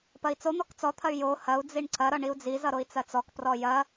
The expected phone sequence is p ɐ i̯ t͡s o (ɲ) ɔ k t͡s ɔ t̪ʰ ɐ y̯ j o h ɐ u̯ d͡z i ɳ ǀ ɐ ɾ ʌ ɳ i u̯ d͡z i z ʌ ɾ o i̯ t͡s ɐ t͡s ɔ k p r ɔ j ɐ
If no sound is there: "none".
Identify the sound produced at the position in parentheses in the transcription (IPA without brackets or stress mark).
n̪